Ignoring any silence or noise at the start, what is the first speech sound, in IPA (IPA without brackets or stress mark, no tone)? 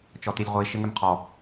t͡ʃ